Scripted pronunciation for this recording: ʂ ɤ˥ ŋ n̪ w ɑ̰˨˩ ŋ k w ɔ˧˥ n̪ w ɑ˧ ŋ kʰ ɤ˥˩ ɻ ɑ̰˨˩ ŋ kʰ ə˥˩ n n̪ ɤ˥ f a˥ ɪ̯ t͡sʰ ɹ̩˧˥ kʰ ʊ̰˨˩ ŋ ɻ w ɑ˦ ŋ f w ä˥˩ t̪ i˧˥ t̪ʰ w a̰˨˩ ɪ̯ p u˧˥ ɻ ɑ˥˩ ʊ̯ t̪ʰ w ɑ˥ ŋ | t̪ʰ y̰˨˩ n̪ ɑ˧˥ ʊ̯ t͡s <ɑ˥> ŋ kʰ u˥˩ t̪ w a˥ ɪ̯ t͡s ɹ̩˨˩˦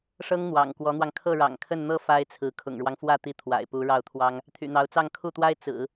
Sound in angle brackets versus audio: incorrect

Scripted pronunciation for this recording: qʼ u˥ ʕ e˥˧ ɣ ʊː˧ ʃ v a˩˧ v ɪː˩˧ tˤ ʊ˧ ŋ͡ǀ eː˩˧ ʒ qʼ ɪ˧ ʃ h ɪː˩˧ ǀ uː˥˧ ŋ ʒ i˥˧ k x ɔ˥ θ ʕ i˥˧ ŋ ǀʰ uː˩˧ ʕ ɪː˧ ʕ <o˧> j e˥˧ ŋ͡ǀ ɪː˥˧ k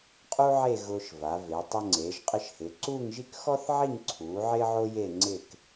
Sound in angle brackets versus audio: correct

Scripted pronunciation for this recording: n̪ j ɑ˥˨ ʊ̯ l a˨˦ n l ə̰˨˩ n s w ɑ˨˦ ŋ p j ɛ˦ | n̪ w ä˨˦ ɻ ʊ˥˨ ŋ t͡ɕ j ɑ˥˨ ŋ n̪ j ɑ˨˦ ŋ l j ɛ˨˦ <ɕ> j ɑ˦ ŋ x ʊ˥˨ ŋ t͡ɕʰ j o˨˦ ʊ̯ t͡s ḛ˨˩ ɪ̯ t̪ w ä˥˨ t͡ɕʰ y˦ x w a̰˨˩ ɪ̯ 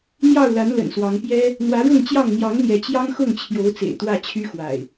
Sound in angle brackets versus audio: incorrect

